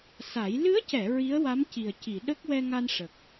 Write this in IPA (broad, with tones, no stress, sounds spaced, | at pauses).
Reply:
s a˨˩˦ j l ɨ˧˥ ə̯ c ɛ˨˩˨ ɹ i˧˥ ə̯ w a˧˥ m c i˨˩ ə̯ c i˨˩˨ ɗ ə˦˥ k̚ w ɛ˧ ŋ a˧ n ʂ ə˨˩ k̚